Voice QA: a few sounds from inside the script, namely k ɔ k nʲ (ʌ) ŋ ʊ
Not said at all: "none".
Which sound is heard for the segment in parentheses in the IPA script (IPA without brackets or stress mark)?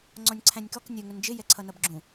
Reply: ə